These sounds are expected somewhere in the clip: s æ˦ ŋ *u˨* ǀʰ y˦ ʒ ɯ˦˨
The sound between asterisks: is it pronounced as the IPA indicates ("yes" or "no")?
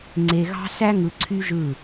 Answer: no